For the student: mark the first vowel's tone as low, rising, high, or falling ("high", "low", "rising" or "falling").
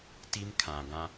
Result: high